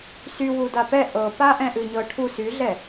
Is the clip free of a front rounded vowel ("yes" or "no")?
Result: no